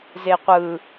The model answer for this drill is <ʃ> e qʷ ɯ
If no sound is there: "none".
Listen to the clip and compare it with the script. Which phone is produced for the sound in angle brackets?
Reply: z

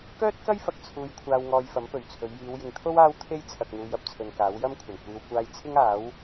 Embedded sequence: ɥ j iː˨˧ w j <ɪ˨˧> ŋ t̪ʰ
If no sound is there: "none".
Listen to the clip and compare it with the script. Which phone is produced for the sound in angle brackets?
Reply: ɪ˨˧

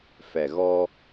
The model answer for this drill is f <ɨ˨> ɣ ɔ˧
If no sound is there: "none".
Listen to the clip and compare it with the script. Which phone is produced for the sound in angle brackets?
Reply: ɛ˨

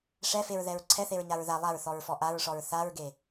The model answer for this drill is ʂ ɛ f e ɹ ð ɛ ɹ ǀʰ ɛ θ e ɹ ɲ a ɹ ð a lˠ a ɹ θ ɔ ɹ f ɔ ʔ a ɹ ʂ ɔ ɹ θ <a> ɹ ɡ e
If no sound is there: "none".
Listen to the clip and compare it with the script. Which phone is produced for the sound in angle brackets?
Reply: a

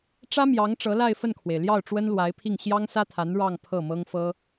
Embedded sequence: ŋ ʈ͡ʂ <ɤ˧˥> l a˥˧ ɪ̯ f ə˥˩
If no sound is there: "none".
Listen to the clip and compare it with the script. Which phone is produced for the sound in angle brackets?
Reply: ɤ˧˥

